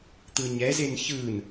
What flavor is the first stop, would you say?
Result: plain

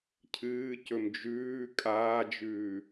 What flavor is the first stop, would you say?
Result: aspirated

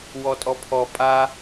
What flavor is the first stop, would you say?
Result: ejective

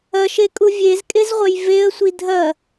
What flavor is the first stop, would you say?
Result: ejective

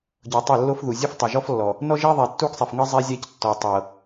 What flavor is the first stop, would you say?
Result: plain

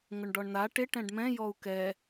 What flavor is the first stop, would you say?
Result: plain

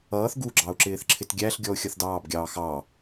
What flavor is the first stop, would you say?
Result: plain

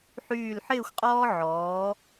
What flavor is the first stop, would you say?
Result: ejective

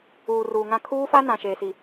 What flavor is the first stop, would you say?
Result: aspirated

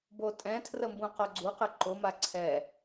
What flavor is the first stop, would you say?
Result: plain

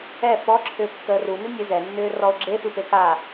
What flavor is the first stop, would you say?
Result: click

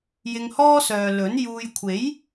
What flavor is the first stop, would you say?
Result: aspirated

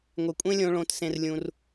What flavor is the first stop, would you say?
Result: ejective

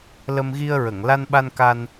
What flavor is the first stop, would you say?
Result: implosive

